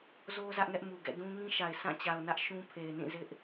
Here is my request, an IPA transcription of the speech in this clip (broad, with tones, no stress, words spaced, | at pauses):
zo˦ zä˦ʔŋɛ˦ʔmu˨ɡɛ̰˦˨ dũ˦ŋĩ˦ʃa˨ɪ̯ sʰã˦˨ t͡ɕa˨ʊ̯nä˦ʔ ʃũ˦ pʰe˨ɪ̯nĩ˦˨ zɪ˦ʔ